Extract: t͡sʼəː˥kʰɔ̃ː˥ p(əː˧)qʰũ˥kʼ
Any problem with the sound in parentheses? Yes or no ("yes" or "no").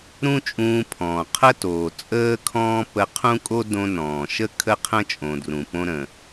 yes